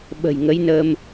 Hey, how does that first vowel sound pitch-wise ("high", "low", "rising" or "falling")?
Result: low